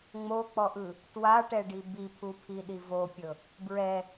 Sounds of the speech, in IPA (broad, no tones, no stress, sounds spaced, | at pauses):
ŋ͡m o k͡p ɔ ʔ ɯ | t w a ʈ ɛ ɖ i b i pʰ u pʰ i ɗ i v o pʲ ɤ | b ɹ ɛ